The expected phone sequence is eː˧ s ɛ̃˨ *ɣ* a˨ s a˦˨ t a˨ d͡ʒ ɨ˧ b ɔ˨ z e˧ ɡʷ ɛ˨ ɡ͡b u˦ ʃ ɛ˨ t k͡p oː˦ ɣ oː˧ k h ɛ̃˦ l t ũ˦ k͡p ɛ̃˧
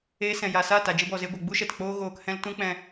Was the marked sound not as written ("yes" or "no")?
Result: yes